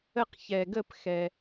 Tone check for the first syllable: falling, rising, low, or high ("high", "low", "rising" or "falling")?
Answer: falling